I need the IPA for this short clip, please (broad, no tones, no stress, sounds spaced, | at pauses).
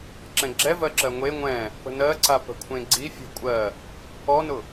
ǁ ɛ̃ ɡ͡ǁ ɛ v ɜ ǁ ɜ ŋʷ e ŋʷ ɛ̃ | p ə̤ n ɜ ǀ a p ə̤ kʷʰ ẽ ɡ͡ǀ i fʲ ɔ̤ kʷʼ ɜ | ɔ n ʊ